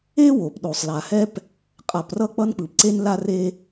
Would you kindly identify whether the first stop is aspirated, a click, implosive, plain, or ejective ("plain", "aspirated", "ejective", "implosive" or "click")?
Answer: plain